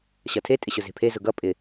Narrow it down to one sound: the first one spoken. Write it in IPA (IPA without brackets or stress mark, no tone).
ɕ